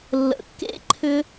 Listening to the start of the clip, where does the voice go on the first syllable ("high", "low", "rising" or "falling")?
low